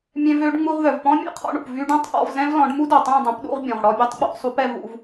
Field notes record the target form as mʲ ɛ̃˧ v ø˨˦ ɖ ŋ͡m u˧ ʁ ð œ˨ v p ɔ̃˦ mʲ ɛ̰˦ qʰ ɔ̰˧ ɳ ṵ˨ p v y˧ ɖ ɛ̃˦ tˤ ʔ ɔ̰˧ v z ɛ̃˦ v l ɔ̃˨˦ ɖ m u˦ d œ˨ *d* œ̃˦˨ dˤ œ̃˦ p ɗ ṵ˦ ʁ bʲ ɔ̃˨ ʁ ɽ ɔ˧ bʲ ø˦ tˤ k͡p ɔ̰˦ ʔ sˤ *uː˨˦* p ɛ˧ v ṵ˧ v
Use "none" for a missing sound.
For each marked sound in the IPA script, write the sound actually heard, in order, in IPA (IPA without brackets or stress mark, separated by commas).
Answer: tˤ, u˨˦